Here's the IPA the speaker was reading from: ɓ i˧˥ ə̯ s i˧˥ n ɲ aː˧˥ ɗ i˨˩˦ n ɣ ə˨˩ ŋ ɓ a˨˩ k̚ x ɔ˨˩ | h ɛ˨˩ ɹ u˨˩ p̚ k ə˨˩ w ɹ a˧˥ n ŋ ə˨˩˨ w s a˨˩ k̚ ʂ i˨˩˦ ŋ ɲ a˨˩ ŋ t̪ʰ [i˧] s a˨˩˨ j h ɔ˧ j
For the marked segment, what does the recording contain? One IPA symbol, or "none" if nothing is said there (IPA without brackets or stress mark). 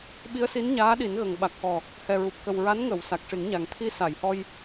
i˧